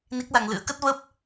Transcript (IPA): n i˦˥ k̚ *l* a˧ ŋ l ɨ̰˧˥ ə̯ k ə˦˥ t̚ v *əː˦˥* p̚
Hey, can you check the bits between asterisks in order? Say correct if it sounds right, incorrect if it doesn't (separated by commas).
correct, correct